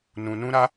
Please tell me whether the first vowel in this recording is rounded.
yes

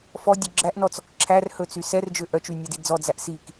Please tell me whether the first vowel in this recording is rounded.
yes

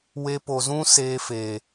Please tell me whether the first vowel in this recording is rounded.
no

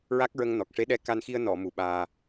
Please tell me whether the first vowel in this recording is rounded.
no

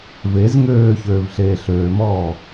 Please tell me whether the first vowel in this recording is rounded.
no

